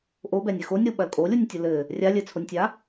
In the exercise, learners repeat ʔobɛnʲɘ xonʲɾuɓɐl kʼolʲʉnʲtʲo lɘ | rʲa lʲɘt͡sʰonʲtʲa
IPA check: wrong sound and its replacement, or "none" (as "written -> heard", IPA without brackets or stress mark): ʉ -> u